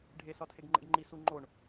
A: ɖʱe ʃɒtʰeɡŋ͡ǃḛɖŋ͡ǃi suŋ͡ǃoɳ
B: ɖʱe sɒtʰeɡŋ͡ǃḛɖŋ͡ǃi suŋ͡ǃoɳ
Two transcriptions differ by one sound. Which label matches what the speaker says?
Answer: B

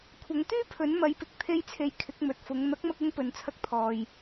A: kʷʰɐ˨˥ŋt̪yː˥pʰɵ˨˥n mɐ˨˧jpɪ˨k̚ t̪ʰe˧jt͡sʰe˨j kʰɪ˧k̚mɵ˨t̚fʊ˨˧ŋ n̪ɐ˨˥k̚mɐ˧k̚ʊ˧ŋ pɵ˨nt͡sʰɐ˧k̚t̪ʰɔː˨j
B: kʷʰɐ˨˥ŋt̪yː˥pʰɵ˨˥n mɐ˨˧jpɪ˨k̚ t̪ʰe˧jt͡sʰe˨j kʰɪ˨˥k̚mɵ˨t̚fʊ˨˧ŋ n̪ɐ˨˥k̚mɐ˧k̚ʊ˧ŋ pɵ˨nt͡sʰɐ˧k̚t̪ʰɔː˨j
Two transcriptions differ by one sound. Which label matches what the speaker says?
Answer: B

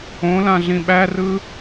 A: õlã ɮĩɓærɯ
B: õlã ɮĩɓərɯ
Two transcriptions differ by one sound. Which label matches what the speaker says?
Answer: A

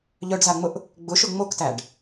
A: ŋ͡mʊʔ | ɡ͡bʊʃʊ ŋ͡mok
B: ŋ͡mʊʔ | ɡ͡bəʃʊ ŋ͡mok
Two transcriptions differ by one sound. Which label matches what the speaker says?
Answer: A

